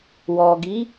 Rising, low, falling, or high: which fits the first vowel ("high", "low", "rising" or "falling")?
low